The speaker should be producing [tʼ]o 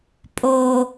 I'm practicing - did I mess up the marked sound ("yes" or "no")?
yes